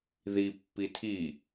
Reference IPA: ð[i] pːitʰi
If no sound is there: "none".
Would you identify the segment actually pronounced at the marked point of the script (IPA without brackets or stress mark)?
i